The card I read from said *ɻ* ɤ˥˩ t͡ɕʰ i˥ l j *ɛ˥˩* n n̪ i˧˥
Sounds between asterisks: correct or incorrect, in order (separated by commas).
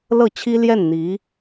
incorrect, correct